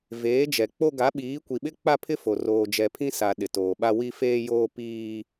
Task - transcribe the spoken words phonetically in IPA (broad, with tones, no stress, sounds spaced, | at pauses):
v eː˨˦ d͡ʒ ɛ˨ k͡p o˦ ɡ a˨˦ ɓ iː˨˦ kʷ i˨ ɓ ɪ˦ k͡p a˦ pʰ ɪ˦ f o˨ r oː˨ d͡ʒ ɛ˨ pʰ ĩ˦ s a˨ ɗ ɪ˨ t oː˨ ɓ a˦ w i˦ f eː˦ j oː˦ p iː˦